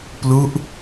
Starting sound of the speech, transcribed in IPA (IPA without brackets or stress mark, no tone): p